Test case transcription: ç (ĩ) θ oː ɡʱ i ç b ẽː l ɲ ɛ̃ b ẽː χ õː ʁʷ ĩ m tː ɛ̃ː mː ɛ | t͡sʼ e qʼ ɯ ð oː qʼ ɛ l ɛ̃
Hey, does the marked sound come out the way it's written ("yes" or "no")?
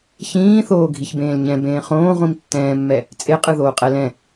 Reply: no